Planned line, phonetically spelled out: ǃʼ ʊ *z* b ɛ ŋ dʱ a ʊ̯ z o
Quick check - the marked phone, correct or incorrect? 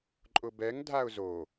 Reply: incorrect